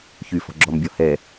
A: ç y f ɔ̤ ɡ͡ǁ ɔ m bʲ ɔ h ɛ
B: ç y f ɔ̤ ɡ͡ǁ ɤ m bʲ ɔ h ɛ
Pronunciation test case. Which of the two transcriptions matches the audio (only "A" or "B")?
A